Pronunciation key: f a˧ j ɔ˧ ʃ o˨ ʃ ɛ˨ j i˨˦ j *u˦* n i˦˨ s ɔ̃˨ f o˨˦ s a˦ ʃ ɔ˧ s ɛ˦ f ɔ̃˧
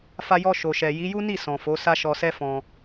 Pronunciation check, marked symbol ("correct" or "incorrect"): correct